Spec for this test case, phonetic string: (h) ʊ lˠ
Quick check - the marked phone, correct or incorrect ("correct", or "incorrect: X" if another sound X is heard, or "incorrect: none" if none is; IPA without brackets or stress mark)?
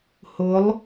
correct